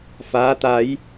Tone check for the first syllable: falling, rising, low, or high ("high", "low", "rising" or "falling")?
rising